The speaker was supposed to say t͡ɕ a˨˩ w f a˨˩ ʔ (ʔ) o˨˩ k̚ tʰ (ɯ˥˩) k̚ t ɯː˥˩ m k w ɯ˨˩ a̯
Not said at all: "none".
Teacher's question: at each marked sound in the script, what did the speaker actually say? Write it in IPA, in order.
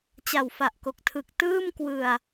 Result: k, ɯ˨˩

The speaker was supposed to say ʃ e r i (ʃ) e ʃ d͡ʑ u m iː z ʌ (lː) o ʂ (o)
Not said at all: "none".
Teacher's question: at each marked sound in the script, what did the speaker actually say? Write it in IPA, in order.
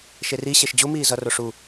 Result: ɕ, r, u

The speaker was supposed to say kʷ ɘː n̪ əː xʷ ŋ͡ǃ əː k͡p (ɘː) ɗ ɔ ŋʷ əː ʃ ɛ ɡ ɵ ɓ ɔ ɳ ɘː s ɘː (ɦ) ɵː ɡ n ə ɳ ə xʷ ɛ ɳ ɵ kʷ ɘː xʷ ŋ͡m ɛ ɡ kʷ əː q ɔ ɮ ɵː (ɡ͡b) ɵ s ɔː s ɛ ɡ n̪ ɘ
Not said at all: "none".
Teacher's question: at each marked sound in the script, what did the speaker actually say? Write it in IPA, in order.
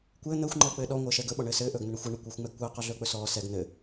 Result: ɘː, ʔ, k͡p

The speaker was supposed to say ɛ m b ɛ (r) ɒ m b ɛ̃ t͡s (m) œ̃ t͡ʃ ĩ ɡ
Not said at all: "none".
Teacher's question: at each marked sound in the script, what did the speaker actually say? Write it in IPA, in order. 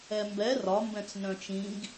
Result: r, n

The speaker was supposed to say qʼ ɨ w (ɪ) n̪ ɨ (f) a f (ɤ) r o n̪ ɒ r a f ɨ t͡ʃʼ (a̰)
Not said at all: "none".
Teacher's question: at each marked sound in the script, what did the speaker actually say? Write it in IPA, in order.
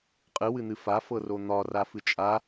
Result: ɨ, f, ɤ, a

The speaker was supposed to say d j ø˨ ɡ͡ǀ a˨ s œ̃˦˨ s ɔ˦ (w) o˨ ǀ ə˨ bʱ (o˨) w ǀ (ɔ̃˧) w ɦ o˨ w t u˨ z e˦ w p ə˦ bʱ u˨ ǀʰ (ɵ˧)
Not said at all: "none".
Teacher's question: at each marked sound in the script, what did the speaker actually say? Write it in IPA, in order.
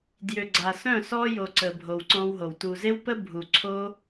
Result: j, o˨, ɔ̃˧, o˧

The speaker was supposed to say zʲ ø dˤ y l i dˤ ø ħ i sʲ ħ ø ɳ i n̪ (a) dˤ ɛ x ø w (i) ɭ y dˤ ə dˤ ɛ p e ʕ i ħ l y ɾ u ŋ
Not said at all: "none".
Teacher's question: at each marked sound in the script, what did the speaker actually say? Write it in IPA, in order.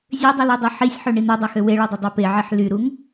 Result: a, e

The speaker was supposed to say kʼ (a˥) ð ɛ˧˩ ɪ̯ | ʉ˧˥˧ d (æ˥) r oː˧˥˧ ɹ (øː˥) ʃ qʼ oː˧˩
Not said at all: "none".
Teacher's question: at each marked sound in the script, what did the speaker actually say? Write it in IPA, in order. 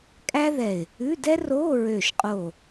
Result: æ˥, ɛ˥, øː˧˩

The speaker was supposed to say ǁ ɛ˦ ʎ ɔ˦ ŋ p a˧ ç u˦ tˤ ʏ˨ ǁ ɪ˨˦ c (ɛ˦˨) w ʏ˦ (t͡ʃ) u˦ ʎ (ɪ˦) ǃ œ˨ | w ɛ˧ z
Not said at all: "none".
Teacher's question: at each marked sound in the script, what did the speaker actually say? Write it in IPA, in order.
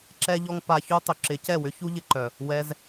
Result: ɛ˦˨, ç, ɪ˧

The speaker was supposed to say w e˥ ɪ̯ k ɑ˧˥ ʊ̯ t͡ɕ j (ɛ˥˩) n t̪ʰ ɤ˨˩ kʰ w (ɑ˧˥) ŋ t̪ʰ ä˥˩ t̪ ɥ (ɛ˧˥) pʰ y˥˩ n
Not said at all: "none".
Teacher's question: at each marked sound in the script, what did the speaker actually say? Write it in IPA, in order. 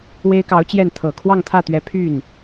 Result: ɛ˥˩, ɑ˥˧, ɛ˧˥

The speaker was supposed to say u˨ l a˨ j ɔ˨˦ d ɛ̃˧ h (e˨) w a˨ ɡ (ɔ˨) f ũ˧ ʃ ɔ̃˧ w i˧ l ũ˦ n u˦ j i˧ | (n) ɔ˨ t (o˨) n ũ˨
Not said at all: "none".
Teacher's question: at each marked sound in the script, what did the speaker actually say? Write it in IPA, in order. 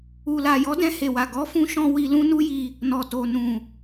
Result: e˨, ɔ˨˦, n, o˨

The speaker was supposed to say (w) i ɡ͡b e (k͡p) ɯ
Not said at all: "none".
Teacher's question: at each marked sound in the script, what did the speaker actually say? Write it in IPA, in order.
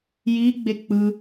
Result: j, k͡p

